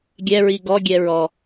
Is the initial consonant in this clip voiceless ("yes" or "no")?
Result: no